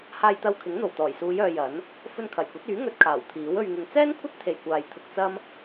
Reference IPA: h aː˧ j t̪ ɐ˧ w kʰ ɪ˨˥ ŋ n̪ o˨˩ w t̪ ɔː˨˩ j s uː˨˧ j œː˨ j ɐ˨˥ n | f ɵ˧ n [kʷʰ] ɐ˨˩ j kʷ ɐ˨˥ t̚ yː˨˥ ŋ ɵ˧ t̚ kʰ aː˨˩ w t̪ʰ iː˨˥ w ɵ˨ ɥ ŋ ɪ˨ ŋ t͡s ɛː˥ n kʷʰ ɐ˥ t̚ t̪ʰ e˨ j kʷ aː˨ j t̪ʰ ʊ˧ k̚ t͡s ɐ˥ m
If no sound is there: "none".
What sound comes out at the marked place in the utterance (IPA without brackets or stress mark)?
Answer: kʰ